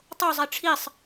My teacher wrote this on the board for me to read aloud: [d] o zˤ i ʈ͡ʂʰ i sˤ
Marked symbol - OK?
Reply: no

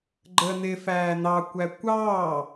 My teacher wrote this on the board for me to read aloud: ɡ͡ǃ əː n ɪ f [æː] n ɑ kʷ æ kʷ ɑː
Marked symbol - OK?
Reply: yes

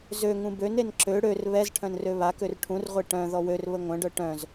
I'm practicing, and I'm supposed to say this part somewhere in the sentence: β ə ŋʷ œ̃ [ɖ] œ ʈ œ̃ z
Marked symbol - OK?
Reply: yes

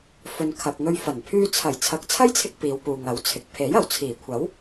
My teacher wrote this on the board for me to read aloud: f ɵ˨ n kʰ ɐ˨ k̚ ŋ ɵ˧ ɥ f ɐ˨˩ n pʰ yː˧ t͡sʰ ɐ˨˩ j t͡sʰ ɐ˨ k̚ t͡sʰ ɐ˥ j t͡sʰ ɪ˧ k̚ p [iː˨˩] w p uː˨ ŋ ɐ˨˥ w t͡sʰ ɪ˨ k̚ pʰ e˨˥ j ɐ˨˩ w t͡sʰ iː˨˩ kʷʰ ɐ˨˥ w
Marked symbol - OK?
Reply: no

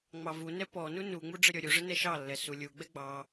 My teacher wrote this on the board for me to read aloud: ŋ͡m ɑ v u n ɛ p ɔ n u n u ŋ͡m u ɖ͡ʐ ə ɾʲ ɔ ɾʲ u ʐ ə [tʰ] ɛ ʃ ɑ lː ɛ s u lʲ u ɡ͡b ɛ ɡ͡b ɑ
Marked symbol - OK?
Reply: no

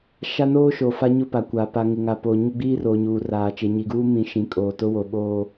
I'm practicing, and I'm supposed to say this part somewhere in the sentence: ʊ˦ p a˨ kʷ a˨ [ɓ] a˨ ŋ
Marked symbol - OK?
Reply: no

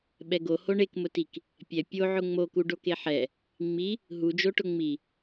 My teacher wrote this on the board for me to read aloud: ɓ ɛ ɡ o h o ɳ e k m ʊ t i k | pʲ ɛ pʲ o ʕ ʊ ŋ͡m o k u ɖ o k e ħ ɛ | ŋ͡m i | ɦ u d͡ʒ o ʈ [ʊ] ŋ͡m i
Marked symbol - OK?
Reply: yes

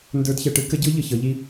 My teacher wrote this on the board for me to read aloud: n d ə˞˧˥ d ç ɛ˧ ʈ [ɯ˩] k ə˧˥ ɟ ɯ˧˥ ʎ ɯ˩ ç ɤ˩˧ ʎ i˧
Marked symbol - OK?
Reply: no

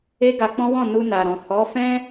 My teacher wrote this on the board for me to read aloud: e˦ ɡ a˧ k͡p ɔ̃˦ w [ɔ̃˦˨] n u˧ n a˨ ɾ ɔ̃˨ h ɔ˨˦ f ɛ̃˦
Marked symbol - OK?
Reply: yes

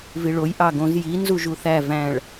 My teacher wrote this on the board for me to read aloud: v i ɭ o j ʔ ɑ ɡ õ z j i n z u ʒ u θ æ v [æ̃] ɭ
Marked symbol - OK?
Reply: yes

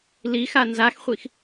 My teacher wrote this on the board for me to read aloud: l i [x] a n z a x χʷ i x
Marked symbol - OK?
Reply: yes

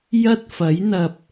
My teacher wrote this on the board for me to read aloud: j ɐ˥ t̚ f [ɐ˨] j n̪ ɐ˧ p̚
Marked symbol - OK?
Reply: no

